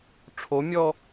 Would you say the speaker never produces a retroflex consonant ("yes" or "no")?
no